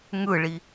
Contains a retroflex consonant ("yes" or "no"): yes